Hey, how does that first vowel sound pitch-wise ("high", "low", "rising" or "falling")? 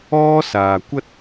high